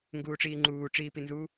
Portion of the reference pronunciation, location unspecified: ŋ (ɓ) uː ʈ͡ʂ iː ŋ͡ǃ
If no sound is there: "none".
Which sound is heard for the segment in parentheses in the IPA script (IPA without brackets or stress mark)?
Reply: ɡ